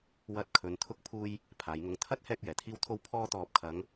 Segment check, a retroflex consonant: absent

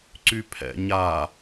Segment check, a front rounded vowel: present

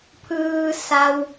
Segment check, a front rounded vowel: absent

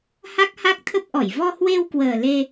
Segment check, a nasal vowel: absent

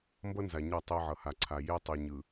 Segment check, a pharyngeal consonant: present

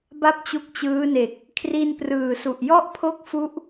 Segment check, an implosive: absent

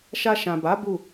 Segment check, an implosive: absent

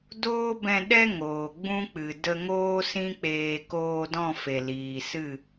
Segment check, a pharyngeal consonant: absent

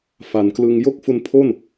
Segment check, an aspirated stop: present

